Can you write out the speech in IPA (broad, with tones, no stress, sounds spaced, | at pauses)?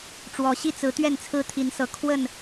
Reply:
ʈ͡ʂ w ɔ˨˦ ɕ i˦ t͡s ɹ̩˨˦ t̪ ɥ ɛ˥˨ n t͡sʰ ɹ̩˦ t̪ʰ i˨˦ n s ɤ˨˩ kʰ w ə˥˨ n